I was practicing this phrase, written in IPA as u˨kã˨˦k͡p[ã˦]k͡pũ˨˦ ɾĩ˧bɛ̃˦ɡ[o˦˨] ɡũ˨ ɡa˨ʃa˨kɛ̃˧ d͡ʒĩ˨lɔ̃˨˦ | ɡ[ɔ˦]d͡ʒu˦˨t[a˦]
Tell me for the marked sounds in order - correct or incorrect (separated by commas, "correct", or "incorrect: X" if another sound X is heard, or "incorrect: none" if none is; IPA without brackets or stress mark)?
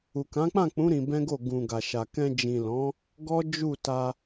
incorrect: ã˦˨, correct, correct, incorrect: a˧